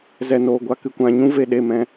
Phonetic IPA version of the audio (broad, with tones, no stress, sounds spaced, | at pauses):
z ɛ˨ n oː˨ ɡʷ a˧ k ɨ˨˦ kʷ ã˨˦ ɲ ũ˦ v e˨ ɗ e˦˨ m ɛ̃˧